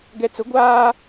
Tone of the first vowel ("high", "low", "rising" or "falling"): low